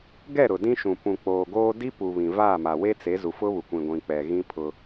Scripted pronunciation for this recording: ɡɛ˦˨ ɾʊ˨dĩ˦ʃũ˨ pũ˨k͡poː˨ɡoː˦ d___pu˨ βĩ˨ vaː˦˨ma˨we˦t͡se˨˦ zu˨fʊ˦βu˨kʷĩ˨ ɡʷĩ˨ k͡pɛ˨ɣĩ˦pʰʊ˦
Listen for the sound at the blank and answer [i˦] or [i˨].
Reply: i˦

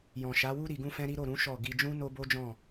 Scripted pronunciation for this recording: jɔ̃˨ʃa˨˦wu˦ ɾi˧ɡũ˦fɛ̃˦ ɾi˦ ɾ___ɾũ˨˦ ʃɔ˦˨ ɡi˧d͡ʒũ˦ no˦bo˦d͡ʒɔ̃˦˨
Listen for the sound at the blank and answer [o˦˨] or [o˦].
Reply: o˦˨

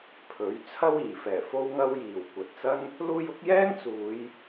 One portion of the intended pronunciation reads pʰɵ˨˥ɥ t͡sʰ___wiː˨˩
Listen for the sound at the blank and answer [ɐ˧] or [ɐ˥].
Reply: ɐ˥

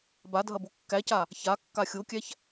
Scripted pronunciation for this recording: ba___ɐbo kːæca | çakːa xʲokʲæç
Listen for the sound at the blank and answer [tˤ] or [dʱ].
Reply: dʱ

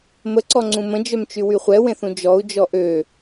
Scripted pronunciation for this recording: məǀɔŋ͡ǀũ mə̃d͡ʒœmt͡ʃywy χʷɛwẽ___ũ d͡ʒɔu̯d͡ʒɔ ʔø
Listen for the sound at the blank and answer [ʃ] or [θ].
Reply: θ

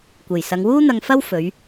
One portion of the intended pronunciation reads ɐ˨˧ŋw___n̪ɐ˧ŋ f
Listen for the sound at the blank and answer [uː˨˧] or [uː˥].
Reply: uː˥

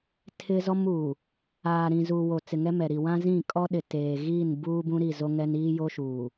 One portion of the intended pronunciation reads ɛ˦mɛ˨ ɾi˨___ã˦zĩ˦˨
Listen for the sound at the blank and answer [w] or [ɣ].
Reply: w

